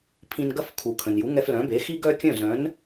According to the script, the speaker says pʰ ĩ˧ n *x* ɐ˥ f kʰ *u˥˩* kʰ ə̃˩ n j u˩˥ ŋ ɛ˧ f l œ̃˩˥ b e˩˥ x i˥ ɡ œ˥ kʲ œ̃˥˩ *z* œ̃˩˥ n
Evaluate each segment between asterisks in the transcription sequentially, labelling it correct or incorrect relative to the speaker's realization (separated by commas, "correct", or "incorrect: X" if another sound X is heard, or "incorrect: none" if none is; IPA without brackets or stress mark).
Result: incorrect: ɡ, incorrect: u˩, correct